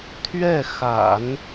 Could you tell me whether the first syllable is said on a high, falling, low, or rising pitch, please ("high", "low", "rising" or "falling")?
falling